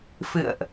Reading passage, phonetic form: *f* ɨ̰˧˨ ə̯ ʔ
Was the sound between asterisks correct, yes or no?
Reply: yes